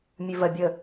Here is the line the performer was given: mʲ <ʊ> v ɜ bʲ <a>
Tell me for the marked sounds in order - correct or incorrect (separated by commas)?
incorrect, incorrect